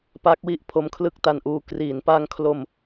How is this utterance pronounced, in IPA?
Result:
pa˦˥k̚wi˦˥ʔ pʰo˦˥mkʰlɯ˥˩k̚ta˧nʔuː˧ kriː˩˦npa˧ŋkʰlo˧m

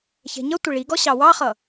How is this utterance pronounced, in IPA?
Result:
çɛ̤ɲʌtʷɪ ɭiɡɔ ɕɑwɑχʌ

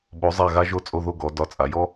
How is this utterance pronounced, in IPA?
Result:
ɓo˩˧zˤa˧˩ɣa˧ʒo˧ t͡sʼo˧ðo˧ ɡɔ˩˧dɒ˧˩t͡sʼa˩˧jɔ˥

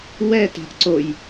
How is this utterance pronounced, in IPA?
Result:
wɛ ta̤ʔǀoj

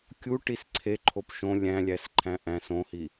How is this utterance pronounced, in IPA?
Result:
kʲu ʈisǀʰe ǃʰopʃõ lʲæ̃lʲæs ǃʰæ̃ʔæ̃s õhi

